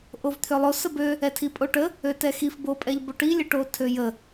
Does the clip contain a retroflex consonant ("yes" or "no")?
yes